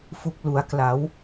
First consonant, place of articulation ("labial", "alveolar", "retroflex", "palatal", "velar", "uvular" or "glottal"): labial